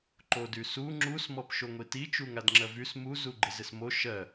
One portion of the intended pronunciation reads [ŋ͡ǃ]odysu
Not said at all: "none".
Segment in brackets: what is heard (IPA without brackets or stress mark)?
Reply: ǃ